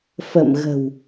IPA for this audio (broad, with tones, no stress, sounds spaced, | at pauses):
f ə̰˧˨ m ɣ ə̤˨˩ w